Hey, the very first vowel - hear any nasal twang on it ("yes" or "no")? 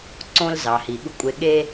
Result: yes